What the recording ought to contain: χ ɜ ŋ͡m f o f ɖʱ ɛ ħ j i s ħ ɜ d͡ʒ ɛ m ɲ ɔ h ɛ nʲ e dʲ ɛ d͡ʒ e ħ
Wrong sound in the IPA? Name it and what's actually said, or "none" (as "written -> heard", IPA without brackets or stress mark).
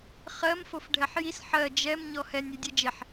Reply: ŋ͡m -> m